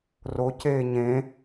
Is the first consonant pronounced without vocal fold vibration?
no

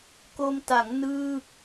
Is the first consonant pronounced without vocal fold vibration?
yes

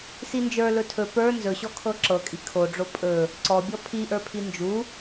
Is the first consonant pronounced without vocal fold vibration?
yes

